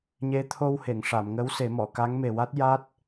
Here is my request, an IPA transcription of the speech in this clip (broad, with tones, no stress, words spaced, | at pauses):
ɲe˧˥t̪ʰo˧whe˨˩˨ŋʂa˨˩˨m ŋə˧˥wse˨˩˦mɔ˨˩˨ ka˧˥ŋme˨˩wa˦˥t̚ ja˦˥t̚